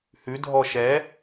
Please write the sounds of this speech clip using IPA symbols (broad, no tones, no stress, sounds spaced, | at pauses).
h ʉ dʱ ɔ ʃ ɛ